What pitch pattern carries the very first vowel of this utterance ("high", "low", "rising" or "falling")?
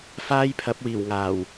high